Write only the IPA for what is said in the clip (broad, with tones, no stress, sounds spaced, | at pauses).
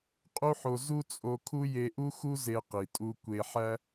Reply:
qʼ u˥ ħ o˧ z u˥ t͡sʼ o˧ kʰ u˥ j e˧ ʔ u˥ x u˥ z e˧ q i˩ tʼ u˧ kʷ e˧ ħ æ˥